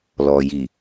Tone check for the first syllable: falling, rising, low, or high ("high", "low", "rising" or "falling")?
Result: low